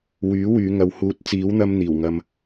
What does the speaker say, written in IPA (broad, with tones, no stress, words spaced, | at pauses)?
wyː˨˥wyː˨˧ŋɐ˨˧w huː˨˥t̚t͡siː˨˥wn̪ɐ˧mn̪iː˨˩w ŋɐ˧m